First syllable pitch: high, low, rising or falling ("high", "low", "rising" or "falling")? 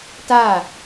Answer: falling